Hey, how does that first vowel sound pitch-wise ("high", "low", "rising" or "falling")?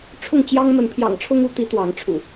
falling